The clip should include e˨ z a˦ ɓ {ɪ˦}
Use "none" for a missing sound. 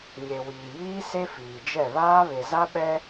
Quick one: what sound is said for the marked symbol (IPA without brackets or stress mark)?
ɛ˦